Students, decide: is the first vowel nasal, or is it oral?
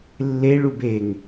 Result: oral